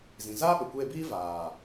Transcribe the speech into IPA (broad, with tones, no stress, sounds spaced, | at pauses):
z ĩ˨ z aː˦ ɓ ə˨ kʷ eː˧ b iː˦ v aː˨